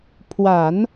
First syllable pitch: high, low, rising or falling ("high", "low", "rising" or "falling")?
low